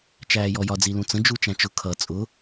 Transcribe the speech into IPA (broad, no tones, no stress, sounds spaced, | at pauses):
t͡ʃ æː j ɔ j ɒ d͡z i l ũ t͡s ə̃ d͡ʒ u t͡ʃ æ̃ t͡ʃ ʊ kʰ ʌ t͡sʼ ʊ